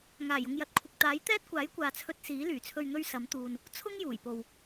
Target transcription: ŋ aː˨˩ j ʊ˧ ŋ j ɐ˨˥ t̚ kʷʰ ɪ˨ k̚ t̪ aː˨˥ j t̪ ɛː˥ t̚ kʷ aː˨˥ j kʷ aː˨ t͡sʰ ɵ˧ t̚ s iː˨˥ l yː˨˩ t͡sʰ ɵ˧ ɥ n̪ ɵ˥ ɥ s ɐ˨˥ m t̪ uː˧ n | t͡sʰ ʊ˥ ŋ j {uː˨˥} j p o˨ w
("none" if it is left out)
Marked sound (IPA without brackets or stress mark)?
uː˨˩